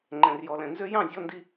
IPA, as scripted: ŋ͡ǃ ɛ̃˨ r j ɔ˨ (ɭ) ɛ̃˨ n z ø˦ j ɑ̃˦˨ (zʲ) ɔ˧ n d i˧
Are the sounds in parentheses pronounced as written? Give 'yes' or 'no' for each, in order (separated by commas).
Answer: no, yes